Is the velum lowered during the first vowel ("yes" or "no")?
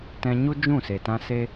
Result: yes